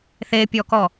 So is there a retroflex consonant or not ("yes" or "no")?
no